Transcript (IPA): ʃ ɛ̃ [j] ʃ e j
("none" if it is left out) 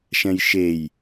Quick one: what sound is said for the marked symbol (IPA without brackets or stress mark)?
j